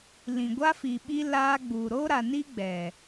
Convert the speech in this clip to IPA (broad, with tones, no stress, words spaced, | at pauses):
lĩ˨ɡʷa˦ fi˨ɓi˦ laː˦ɡ͡buː˨ ɾoː˦ɾa˨ni˦ ɡ͡bɛ˨